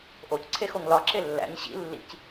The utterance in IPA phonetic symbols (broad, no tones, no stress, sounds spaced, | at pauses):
ʔ o c ǀʰ e x o ŋ l ɒ ǁ e lː æ̰ ɲ ɕ ḭ lː ḭ c